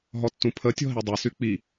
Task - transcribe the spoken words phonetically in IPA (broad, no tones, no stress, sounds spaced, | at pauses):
ɦ ɔ tː ũ pʰ ə tʲ ɔ̤ ɦ i dˤ i s y k͡p i